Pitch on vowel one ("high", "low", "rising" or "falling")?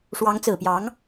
rising